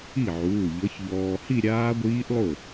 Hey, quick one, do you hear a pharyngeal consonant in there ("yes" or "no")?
yes